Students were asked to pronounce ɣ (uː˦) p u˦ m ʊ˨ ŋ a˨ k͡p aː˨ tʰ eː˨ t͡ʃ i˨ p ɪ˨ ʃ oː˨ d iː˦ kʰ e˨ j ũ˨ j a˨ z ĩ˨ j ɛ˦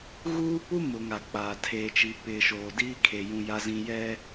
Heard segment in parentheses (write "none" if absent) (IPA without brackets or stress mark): uː˦